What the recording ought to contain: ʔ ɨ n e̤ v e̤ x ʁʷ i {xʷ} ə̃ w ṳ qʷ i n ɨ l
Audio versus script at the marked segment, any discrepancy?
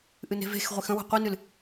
yes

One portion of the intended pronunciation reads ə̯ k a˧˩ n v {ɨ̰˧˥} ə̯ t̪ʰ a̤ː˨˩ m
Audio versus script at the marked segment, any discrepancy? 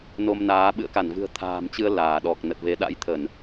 yes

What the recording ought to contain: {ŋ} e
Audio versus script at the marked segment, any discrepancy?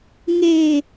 no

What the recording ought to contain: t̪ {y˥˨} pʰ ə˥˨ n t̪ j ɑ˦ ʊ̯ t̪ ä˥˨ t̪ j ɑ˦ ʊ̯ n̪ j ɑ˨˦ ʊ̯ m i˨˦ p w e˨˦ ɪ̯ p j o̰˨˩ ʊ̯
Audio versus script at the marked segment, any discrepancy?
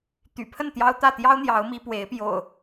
yes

